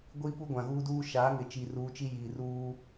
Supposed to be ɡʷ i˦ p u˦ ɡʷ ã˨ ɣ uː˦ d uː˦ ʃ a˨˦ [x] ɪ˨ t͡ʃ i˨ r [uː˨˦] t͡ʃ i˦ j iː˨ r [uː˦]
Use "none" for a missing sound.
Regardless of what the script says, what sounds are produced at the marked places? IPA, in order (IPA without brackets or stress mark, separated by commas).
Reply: ŋ, uː˨˦, uː˦